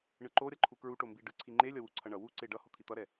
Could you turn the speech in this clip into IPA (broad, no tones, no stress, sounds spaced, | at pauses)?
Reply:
ɳ ɯ ǃ o ɾʲ ʌ ǃʰ u k ɹ u ʈ o m b i ɖ ɯ ǀʰ i ŋ͡ǃ e lʲ ʌ w u ǀʰ ʌ ɳ ʌ w u ǀ e ɖ ʌ h o t̪ʰ i t̪ ʌ ɾ ɛ